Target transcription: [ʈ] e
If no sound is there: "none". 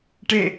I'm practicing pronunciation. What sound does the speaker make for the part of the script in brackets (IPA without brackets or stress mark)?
ʈ